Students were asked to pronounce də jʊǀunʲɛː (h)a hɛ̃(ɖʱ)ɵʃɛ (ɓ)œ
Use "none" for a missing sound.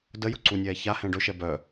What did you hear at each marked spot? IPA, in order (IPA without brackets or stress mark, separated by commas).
ç, ɖ, b